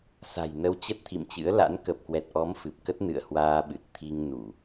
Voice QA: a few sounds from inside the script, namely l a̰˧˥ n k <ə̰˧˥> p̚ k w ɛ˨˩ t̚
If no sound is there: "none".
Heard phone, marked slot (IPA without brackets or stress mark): ə˨˩